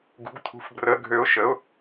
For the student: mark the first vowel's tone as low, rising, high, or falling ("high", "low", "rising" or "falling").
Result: rising